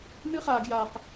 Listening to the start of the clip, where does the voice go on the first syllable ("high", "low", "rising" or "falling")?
high